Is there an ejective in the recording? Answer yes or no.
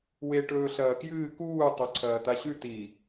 no